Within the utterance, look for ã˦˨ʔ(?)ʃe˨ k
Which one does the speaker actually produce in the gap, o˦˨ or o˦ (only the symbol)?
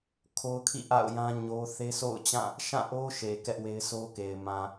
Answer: o˦